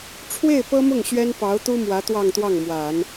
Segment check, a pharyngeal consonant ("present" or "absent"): absent